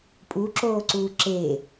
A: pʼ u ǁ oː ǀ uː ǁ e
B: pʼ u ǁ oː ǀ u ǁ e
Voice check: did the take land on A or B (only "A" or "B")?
A